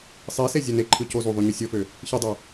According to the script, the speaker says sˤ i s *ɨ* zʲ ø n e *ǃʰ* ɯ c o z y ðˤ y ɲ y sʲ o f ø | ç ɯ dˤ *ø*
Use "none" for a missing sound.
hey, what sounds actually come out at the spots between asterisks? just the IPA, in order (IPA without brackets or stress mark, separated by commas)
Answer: e, ǃʰ, ø